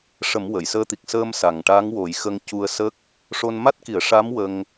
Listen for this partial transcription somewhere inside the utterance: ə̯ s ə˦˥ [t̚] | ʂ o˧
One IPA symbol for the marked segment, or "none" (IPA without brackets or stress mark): k̚